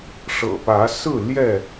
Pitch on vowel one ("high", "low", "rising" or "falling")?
low